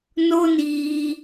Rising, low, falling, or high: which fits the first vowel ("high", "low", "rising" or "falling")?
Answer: high